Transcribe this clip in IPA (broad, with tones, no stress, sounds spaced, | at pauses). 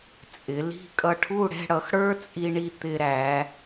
t͡sʼ ɪ˩˧ l i̤˧ kʼ ʌ˧ ʈʰ u˥˧ ɽ ɛ̤˥˧ ɽ ʌ˩˧ x ɽ ə˞˥ t͡sʼ i˧ ɳ i˧ t̪ ɪ˧ ɾ æ˩˧